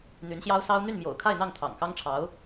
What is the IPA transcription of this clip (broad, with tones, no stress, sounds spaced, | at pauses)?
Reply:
n̪ y˧˥ n ɕ j ɑ˥ ʊ̯ s ɑ˥ ʊ̯ n̪ y˥˩ n m j o̰˨˩ ʊ̯ kʰ a˥˧ ɪ̯ n̪ ɑ˥˩ ŋ t̪ʰ ɑ̰˨˩ ŋ k ɑ˥ ŋ ʈ͡ʂʰ ɑ˧˥ ʊ̯